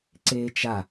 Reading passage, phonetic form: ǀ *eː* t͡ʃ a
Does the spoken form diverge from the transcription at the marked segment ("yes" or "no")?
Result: no